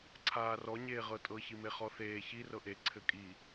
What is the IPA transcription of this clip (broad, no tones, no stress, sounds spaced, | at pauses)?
ǀʰ aː r ɔ ɲ eː ʁ ɤ tʼ ɤ ç i m e χ ɔ θ eː ç i r ɤ ʔ e ǀʰ ɘ kʼ i